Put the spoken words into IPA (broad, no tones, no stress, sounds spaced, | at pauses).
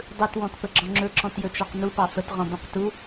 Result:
dˤ ɯ t w ɔ̃ t p ə ɡ͡ǁ ɔ̃ ŋ͡ǁ ɵ ǁ ɔ̃ t j ɵ t͡ʃ ɔ q n u p ɑ f ə t ʁ ɔ̃ b ũ q t u